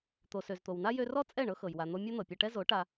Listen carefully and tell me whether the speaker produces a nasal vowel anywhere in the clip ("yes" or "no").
no